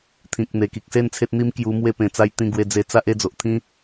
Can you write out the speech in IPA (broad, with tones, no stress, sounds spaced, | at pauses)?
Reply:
t̪ʰ ĩ˨ k̚ n̪ e˨˩ k i˨ k̚ s e˥˧ n t͡sʰ e˦ t̚ n̪ i˦ m k j u˧ m w e˧ p ẽ˨˩ t͡s a˧ j t̪ ĩ˧ ɡ w e˧ d͡z e˧ t͡s a˦ ʔ e˥˧ d͡z o˨ ʔ t̪ʰ ĩ˦